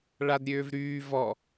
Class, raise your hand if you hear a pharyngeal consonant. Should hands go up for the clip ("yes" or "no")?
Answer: no